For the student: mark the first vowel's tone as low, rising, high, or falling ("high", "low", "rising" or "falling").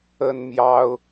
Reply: high